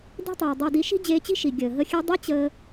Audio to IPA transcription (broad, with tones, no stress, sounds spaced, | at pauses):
d e̤˦ tˤ iː˨ dˤ æ˧ d i˧ ʃ i̤˦ d͡ʑ eː˧ t͡ɕ i̤˦ ʃ i˨ ɡʲ əː˨ ɦ ə˦˨ xʲ e˦ dˤ i˦ t͡ɕ əː˦